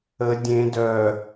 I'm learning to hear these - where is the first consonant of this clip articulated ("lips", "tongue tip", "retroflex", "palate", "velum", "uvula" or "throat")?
tongue tip